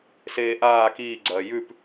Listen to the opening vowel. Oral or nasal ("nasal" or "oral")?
oral